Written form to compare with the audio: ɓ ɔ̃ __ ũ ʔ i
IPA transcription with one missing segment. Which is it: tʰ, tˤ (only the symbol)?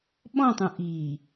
tˤ